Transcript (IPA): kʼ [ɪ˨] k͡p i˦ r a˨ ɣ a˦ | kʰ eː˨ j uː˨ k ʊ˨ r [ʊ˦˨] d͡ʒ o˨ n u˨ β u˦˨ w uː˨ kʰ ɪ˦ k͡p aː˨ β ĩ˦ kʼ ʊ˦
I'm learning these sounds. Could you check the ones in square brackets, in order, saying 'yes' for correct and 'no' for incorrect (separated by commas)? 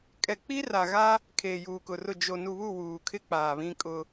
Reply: no, yes